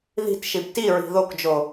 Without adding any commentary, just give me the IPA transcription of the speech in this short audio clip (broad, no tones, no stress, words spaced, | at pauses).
ði̤tʃib tiɹi̤ ðokd͡ʒo